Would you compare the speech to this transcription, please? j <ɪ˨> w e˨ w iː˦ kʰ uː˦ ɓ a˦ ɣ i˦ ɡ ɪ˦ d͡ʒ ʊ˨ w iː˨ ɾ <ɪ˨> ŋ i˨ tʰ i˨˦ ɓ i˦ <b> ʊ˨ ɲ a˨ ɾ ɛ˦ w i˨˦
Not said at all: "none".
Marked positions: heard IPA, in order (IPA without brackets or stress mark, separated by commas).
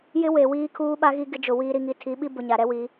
ɪ˦, i˨, b